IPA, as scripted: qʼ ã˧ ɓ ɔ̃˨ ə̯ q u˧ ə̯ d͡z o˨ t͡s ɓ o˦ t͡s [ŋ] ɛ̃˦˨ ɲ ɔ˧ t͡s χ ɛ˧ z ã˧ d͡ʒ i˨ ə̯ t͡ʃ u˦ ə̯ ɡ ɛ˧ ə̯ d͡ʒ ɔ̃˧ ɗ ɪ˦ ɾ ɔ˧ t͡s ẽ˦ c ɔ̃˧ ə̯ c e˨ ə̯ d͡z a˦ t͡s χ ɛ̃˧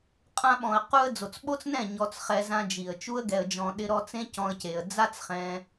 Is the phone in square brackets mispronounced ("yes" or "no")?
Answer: yes